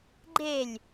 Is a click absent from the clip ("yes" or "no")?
no